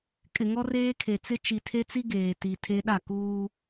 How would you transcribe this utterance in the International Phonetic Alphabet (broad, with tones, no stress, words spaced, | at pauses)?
kʼɪ˨ŋɔ˦reː˦ kʰe˨t͡sɪ˦ t͡ʃi˨tʰe˦t͡si˦ ɡeː˨ti˨tʰe˦ ɗa˦˨ kuː˦